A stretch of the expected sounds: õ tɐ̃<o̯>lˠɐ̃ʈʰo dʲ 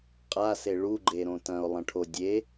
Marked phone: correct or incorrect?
correct